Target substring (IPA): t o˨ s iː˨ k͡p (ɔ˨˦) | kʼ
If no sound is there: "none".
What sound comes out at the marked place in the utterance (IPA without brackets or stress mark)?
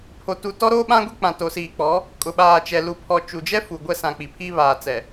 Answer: ɔ˨˦